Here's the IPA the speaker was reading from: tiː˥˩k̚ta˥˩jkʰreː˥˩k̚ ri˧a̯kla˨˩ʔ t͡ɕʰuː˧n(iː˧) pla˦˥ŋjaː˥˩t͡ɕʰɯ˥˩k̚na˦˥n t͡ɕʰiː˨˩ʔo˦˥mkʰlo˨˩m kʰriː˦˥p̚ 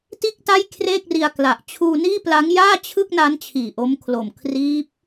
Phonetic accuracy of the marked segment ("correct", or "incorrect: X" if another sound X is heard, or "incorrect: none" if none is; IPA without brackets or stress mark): incorrect: iː˥˩